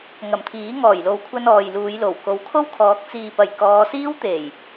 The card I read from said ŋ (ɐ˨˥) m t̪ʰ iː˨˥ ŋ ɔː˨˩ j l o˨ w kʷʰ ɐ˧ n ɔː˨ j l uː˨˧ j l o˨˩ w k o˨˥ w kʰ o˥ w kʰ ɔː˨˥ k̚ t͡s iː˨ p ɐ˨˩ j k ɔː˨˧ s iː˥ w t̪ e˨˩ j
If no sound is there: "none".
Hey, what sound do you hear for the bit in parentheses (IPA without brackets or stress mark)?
ɐ˨˩